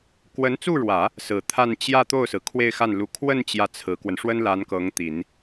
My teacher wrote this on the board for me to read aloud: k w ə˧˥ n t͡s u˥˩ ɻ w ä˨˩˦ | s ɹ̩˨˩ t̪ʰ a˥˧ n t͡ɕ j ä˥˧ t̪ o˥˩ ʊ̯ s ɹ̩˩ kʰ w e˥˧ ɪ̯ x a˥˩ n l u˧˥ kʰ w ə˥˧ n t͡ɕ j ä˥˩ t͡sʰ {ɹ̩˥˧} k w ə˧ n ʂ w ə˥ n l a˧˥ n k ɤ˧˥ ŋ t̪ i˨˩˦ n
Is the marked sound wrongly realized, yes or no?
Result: yes